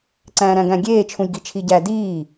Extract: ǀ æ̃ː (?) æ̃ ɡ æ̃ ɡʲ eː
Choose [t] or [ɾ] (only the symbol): ɾ